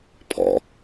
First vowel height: mid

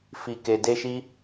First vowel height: high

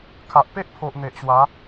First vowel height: low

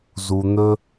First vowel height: high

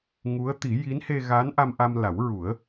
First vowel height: high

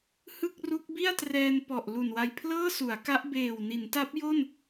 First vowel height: high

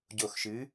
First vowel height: mid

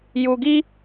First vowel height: high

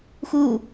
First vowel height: high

